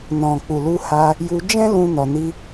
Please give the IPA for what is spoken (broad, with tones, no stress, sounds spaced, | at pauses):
n ɔ̃˨ k͡p u˨ l u˧ h a˧ | j u˧ d͡ʒ ɛ̃˦ l ũ˧ n ɔ˨ n i˧